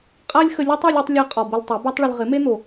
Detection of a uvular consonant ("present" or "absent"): present